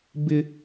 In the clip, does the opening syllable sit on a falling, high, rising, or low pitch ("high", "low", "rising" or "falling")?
high